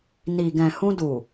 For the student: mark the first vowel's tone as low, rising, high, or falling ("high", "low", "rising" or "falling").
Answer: low